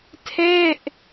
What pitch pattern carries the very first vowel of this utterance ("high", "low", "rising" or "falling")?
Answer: falling